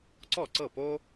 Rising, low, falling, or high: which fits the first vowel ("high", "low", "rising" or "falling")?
falling